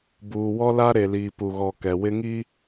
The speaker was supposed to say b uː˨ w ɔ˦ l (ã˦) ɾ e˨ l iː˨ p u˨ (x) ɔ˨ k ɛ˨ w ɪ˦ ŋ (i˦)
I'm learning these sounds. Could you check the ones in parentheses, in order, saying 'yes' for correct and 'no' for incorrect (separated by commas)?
no, no, yes